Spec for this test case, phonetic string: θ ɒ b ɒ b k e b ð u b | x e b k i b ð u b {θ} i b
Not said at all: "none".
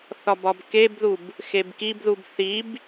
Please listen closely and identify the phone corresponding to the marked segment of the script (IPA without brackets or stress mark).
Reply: θ